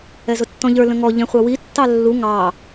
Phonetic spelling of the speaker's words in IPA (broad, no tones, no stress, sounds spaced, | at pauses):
ɛ z ʊ tː ɔ̃ ʎ ə˞ l ə̃ ŋ ɔ ʎ ɛ̃ χʷ ɑ w i tː ɑ lː u ŋ ɑ